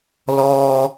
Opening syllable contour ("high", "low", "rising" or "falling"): high